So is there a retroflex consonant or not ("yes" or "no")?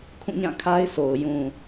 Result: no